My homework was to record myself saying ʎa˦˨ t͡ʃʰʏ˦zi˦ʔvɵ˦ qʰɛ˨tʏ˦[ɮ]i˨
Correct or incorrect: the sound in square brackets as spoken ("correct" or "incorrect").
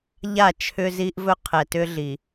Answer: correct